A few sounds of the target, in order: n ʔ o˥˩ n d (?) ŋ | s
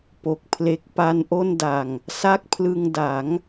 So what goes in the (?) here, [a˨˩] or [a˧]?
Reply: a˨˩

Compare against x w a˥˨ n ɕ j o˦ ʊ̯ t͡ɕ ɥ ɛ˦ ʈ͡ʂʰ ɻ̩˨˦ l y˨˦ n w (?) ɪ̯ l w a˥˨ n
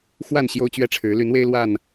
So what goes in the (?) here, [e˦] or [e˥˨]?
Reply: e˦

